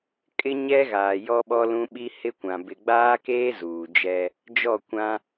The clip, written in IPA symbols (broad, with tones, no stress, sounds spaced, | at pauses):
kʼ ɪ˦ ɲ ɛ˦ ɣ aː˨ j ɔ˦ ɓ ɔ˦ l ũ˦ ɓ i˦ h ɪ˦ kʷ ã˨ b ɪ˨ ɡ͡b aː˦ k eː˦ z uː˨ d͡ʒ ɛ˦ | d͡ʒ ɔ˦˨ kʷ ã˦